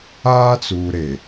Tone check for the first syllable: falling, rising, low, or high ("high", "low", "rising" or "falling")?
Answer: high